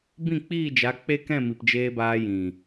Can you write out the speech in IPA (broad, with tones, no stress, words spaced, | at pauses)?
bĩ˦˨k͡piː˦˨d͡ʒa˨˦ k͡pe˦kɛ̃˦˨ mi˨pd͡ʒeː˧ baː˧jĩ˨